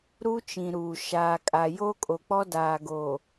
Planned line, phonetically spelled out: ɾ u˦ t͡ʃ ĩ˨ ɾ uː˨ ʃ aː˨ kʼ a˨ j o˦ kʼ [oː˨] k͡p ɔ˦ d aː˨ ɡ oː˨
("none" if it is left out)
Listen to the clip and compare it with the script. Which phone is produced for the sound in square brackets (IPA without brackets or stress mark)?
o˨